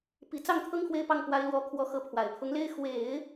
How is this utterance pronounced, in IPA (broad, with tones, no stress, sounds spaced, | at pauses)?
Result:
p i˨˩ t͡s ɑ˥˩ ŋ t̪ʰ ɤ˥ ŋ x w e˥ ɪ̯ p ɑ˥˩ ŋ p w a˧˥ ɪ̯ l w ɔ˧˥ kʰ w ɔ˧˥ x ɤ˥˩ pʰ w a˨˩ ɪ̯ pʰ ʊ˧˥ ŋ l e˥ ɪ̯ x w e˨˩˦ ɪ̯